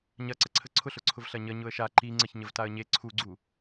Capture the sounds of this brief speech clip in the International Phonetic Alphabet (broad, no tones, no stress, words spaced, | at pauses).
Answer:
ɲɐǀəǀʰə ǀʰʊɬʊǀʰʊv ɬɐɲə ɲʊə̯ʃa ǃi ŋ͡ǀəçɲəvtaə̯ɲe ǀʰuɡ͡ǀu